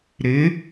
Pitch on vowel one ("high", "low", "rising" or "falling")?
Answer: rising